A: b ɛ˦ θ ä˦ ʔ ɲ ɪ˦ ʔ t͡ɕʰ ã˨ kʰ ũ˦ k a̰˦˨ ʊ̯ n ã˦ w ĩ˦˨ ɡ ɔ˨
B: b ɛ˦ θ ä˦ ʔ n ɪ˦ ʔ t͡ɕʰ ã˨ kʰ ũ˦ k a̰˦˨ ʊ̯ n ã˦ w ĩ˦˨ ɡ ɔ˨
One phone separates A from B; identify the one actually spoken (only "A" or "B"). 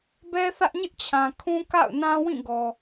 A